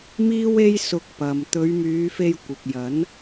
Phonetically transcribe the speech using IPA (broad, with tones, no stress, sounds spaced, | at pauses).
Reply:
m iː˥ w e˥ j s ʊ˧ k̚ p ɐ˨ m t̪ ɵ˨˧ ɥ m yː˨˧ f e˧ j kʷ ɪ˨ k̚ j ɐ˨˥ n